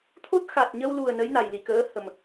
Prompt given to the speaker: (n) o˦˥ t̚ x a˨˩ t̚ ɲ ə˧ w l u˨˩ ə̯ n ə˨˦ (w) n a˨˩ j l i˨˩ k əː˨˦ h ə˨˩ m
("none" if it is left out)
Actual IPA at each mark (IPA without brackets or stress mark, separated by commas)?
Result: t̪ʰ, j